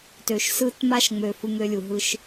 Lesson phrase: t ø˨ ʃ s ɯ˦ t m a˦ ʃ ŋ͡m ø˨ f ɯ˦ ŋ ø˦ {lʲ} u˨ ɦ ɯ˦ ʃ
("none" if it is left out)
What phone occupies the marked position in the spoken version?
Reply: lʲ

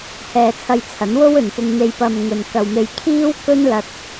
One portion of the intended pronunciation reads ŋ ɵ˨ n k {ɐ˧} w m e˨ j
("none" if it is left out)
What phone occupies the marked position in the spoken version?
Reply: ɐ˨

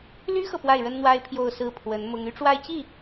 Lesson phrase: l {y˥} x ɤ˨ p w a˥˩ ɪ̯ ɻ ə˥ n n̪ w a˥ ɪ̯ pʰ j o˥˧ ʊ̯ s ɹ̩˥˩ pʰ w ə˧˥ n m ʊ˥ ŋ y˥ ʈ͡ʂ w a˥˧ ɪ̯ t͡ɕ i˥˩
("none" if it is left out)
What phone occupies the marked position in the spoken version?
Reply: y˥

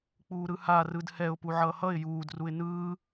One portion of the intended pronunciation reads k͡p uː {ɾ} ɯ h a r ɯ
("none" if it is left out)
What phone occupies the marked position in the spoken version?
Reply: ɾ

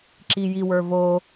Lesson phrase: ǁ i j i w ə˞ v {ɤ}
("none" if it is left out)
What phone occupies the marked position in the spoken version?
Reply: o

